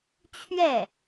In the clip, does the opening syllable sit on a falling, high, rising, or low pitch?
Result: falling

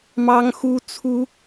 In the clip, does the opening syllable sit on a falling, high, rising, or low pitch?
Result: high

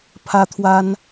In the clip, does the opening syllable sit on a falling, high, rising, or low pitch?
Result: high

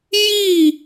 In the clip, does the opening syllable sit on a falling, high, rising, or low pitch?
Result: falling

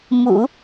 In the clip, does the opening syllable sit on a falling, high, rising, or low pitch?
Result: low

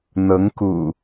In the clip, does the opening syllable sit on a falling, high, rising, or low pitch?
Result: rising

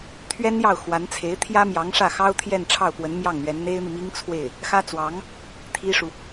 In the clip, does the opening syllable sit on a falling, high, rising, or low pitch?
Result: high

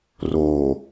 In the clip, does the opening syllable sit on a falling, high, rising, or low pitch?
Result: low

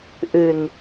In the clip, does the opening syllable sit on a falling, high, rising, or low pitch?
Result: low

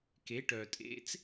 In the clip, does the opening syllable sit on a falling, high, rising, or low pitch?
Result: rising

